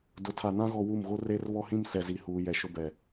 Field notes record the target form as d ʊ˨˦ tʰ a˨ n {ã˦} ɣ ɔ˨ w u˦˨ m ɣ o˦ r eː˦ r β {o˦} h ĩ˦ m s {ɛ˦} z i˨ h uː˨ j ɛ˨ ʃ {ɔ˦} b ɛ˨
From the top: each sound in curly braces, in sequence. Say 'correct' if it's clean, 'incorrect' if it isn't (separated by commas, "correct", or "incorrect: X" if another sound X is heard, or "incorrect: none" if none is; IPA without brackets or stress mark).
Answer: correct, incorrect: ɔ˦, incorrect: ɛ˨, incorrect: ʊ˦